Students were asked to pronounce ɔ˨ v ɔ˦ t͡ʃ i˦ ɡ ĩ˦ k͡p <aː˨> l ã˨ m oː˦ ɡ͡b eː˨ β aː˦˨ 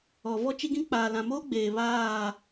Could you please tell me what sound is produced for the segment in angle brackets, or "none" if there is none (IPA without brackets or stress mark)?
aː˨